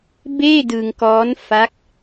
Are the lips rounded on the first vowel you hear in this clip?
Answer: no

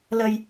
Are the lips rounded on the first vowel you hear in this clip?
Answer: no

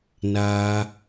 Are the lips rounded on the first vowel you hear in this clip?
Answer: no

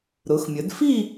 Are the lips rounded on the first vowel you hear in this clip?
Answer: yes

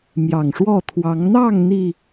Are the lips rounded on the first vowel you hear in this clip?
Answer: no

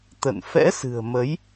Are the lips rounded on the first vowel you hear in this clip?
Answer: no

